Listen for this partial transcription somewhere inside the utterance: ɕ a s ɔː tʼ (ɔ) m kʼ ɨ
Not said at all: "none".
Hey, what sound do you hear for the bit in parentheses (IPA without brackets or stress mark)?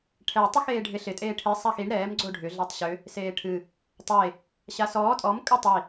ɔ